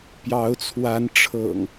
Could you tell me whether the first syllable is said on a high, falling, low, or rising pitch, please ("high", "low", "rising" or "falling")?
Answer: rising